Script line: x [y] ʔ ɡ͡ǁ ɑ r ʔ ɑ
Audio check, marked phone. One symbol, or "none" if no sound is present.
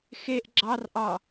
e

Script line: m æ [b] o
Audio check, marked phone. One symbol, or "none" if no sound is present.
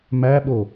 ɓ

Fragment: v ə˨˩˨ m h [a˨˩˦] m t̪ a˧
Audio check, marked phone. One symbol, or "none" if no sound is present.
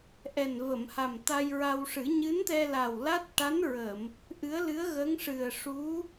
a˨˩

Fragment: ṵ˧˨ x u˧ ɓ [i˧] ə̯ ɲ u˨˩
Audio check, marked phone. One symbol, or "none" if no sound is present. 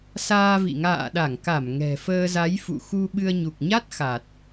ɨ˧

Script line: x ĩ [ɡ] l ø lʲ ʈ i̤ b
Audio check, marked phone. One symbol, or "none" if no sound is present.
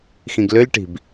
ɡ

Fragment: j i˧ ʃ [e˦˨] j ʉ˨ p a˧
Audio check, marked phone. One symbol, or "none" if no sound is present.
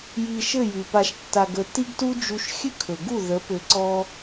ɘ˦˨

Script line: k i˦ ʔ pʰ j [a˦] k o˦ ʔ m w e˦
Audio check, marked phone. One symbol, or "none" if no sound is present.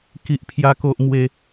a˦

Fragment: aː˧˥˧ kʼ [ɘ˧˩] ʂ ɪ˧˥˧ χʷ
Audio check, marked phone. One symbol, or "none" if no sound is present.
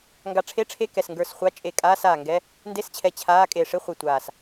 e˧˩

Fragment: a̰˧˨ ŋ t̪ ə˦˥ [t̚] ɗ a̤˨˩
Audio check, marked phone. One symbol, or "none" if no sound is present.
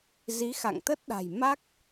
t̚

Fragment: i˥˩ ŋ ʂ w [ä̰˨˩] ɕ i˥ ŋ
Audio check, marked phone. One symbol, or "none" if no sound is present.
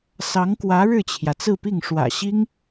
ä̰˨˩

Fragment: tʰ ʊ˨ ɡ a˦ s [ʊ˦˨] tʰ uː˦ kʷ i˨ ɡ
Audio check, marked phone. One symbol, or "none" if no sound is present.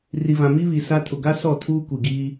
ɔ˦˨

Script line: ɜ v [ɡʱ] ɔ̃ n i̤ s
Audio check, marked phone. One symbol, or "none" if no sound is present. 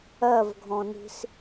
ɡʱ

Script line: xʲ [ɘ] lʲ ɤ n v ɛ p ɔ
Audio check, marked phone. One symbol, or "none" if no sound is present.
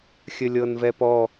ɘ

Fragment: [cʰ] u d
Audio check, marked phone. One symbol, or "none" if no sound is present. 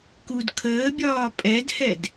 k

